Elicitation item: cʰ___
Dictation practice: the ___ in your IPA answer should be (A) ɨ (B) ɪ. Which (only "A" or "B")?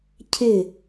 B